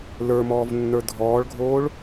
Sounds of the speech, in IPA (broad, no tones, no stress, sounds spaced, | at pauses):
l ə˞ m ɔː v nː ə˞ dʱ ɔː ɭ ɡʱ oː ɭ